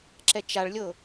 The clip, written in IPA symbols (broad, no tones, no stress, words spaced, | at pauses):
ǁɛt͡ʃaɭlʲɤ